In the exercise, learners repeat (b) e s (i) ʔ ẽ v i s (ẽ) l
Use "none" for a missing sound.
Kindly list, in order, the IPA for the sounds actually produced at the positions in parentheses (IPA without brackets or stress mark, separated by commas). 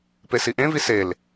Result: p, i, e